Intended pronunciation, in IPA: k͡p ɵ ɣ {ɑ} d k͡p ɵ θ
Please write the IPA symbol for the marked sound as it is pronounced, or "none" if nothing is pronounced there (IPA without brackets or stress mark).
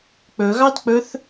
ɑ